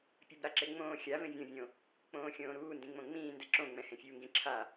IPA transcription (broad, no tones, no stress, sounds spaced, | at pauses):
pʲ a b ɾ a ǁ e ŋ͡m õː xʲ a v ẽ vʲ õ vʲ õ | k͡p õː xʲ õː ɾ uː n d ĩ ŋ͡m õ ŋ͡m ĩː n d ɛ ǁ õ ŋ͡m ɛ̃ h ẽ fʲ uː ŋ ɡ ĩ ǁʰ a